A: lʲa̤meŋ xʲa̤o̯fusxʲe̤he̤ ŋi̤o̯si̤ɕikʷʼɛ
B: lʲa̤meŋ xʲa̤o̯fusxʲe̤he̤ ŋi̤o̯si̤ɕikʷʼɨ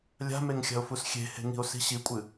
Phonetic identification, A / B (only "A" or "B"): B